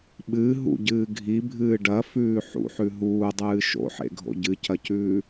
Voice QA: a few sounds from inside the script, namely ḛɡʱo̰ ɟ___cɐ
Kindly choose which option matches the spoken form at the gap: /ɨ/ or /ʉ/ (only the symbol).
ɨ